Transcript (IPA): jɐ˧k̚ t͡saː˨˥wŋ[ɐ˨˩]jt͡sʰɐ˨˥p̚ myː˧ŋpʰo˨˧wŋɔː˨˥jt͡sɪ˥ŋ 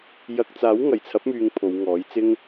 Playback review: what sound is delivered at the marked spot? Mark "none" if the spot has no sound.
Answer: ɐ˨˩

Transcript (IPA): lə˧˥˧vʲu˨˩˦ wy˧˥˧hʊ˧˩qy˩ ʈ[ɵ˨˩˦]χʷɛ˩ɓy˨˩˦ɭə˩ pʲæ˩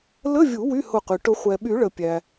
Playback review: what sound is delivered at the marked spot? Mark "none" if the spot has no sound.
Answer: ʊ˨˩˦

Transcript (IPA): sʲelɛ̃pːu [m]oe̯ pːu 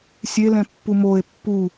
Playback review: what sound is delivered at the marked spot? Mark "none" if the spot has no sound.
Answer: m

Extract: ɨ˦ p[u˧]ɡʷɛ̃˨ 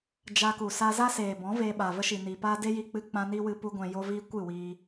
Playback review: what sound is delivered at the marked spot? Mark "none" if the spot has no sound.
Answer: u˧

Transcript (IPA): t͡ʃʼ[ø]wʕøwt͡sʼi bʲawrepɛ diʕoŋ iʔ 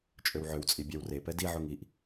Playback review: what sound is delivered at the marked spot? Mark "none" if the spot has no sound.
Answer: ø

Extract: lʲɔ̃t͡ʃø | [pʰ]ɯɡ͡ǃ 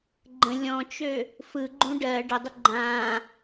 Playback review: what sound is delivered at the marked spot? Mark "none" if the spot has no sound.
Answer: f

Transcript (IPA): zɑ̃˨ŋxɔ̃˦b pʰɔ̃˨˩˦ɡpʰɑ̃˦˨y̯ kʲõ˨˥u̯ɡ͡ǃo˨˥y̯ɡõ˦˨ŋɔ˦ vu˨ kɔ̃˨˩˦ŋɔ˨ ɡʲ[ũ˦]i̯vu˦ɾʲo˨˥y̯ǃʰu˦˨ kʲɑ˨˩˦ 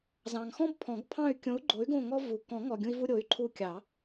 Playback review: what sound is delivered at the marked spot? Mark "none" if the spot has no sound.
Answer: ũ˦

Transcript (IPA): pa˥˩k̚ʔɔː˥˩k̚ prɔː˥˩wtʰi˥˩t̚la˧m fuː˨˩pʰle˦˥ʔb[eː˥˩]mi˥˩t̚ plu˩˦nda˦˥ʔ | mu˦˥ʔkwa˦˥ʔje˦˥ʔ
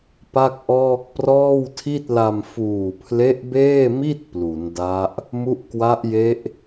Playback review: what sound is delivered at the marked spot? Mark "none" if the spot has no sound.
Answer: eː˥˩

